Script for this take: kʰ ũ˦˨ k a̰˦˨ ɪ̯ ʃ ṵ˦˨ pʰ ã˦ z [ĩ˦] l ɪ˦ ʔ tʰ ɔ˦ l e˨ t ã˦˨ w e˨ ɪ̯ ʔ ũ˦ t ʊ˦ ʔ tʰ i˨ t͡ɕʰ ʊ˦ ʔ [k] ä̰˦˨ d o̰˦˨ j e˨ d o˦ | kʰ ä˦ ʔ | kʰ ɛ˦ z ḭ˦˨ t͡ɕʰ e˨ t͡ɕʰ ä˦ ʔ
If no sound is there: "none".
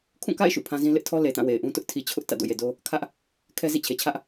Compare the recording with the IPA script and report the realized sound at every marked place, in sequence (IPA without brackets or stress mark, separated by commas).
ĩ˦, t